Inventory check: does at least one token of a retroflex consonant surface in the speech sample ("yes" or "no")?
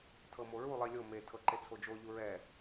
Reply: no